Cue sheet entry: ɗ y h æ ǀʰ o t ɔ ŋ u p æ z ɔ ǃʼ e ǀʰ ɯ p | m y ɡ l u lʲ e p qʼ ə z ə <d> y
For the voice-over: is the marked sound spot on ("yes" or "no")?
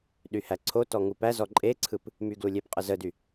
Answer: yes